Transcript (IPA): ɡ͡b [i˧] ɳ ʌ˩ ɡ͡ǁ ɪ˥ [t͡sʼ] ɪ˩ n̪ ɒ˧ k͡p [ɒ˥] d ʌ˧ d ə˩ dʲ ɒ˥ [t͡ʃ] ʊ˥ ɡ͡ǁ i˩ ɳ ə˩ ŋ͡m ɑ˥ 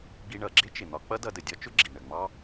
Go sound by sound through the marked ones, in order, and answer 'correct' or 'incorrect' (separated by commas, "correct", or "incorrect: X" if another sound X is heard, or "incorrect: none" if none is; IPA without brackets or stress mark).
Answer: correct, incorrect: t͡ʃ, incorrect: ʌ˥, correct